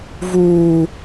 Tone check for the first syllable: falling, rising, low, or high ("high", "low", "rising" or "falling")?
high